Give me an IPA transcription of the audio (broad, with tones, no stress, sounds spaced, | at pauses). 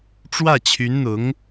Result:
ʈ͡ʂ w ä˥˩ t͡ɕʰ y˧˥ n n̪ ʊ˧˥ ŋ